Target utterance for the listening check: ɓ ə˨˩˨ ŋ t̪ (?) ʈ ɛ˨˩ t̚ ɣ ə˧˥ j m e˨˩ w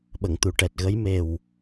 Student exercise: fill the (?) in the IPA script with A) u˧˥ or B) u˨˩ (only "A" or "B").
B